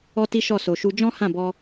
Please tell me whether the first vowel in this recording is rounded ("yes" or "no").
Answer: yes